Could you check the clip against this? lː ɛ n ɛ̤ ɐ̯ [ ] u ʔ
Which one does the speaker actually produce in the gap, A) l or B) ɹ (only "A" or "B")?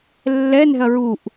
B